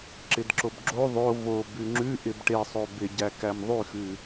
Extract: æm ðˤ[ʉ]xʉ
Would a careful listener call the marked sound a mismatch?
no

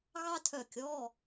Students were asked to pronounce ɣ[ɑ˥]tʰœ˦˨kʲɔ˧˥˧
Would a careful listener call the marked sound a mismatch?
no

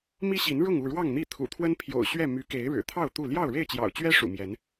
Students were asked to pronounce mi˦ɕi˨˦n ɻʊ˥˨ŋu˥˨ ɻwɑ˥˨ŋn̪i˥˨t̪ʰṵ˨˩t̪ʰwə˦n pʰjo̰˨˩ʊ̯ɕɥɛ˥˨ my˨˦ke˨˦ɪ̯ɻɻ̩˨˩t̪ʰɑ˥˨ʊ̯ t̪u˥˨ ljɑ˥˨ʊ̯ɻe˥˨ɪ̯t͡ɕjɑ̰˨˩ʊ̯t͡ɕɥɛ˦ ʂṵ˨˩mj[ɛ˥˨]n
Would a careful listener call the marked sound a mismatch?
yes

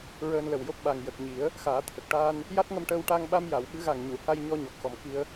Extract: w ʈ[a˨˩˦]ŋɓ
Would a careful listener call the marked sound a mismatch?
yes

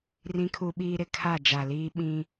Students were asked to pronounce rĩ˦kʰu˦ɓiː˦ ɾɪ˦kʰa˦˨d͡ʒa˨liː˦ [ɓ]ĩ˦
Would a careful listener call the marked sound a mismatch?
no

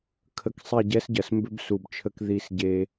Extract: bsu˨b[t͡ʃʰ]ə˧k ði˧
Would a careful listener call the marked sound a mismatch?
no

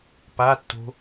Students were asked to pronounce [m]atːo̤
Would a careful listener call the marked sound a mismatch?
yes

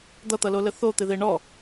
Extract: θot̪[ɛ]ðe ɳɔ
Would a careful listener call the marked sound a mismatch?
yes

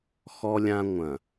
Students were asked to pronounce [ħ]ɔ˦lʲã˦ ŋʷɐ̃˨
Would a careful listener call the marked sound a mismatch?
yes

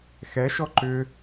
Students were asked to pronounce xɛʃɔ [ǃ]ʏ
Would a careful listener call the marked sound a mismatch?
no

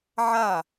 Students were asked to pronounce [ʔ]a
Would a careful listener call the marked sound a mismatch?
yes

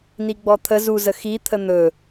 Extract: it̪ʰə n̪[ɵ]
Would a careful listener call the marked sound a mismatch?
no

